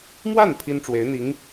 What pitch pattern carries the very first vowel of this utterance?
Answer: falling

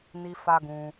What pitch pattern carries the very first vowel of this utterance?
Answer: high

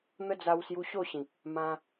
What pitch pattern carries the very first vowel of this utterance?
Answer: high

